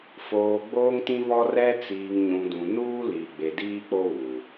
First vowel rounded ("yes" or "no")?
yes